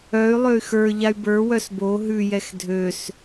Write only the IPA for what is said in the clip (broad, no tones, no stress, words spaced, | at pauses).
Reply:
œy̯lˠøy̯ xə˞ ʎay̯bə˞wœs bo ɦʉjɛx dʱøs